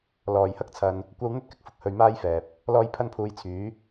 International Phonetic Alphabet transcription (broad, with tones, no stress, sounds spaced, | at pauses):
l ɔː˨˩ j h ɐ˥ k̚ t͡sʰ ɐ˨ n | kʷ ɐ˧ w n̪ ɵ˥ t̚ k ɪ˨ k̚ f ʊ˨ k̚ h ɵ˨ ɥ m aː˥ j f ɛː˨ p̚ | l ɔː˧ j pʰ ɐ˥ n pʰ uː˧ j t͡sʰ yː˨˥